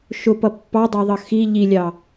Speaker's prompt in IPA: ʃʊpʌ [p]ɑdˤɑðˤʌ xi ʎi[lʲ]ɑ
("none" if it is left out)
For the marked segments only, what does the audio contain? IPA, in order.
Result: pː, lʲ

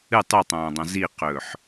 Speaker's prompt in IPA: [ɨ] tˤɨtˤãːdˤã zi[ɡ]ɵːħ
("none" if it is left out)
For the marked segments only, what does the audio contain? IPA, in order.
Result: ɨ, q

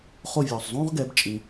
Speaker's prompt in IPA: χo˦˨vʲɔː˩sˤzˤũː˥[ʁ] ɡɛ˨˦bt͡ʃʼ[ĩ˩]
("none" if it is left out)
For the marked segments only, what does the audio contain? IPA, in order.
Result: ʁ, ĩ˩

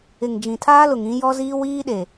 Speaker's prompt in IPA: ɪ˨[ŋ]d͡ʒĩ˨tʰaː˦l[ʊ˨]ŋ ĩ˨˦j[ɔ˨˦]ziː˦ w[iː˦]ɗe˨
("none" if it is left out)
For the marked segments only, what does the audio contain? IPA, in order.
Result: ŋ, ʊ˨, ɔ˦, iː˦

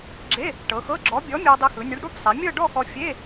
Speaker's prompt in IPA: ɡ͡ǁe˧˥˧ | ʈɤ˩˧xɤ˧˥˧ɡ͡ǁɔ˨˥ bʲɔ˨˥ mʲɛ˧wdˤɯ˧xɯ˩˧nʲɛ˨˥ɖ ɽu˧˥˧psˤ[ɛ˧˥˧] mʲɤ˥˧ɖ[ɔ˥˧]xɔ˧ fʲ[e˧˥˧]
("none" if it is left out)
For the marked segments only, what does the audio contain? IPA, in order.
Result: ɛ˩˧, ɔ˥˧, e˧˥˧

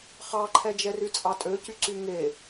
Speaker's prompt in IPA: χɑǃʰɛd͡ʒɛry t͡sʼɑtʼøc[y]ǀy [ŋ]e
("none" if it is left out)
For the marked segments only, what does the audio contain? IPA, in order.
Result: y, ŋ

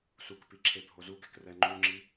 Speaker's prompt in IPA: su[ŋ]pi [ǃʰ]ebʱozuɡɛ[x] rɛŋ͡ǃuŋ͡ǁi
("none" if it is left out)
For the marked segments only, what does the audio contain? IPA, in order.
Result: k, ǁʰ, k

